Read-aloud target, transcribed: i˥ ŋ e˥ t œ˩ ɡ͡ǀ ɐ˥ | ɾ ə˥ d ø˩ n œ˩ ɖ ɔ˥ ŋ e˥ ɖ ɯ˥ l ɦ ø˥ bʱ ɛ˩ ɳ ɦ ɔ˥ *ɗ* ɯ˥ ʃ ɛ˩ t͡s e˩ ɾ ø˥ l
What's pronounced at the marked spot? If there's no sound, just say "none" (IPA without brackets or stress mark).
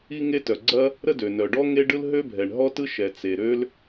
t